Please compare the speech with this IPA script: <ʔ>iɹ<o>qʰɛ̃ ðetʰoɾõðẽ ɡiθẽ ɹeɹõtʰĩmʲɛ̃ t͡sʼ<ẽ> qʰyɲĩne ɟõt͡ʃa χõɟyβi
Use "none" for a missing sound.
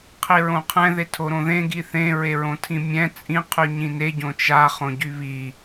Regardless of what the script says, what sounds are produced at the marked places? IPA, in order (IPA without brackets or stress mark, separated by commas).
qʰ, õ, ĩ